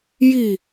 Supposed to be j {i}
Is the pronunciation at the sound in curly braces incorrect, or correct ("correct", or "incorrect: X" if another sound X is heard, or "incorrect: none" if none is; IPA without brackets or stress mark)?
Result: correct